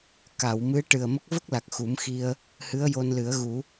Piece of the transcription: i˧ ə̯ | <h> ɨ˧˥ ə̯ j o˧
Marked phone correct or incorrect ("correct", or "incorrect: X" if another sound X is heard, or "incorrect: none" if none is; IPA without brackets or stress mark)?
correct